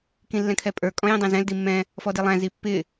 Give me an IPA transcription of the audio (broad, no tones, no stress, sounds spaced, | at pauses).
k ĩ lː ɛ̃ kʰ ɛ pʼ ə˞ kʼ ɔ̃ j ĩ dˤ ɛ̃ z ɛ̃ l d i mː ɛ̃ | f ɔ d i lˠ æ̃ z i pː ɪ